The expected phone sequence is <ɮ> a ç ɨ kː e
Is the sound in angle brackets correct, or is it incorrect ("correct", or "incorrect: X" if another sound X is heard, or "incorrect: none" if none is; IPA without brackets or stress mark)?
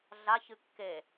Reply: correct